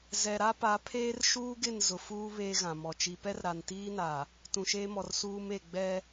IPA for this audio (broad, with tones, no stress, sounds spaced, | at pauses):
z ɛ˨ ɾ a˦ p a˨˦ pʰ eː˦ r ʃ uː˦ ɡ ɪ˦˨ n z ʊ˨ f uː˦ β eː˦ ɣ ã˨ m ɔ˨ t͡ʃ i˨ p ɛ˦ r ɾ a˨ n t iː˦ n a˨ | t ũ˨ ʃ eː˦ m ɔ˨ r s uː˦ m e˦˨ ɡ͡b ɛ˦